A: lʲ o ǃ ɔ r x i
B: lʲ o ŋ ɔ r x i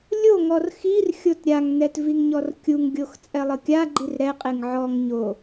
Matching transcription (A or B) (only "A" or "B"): B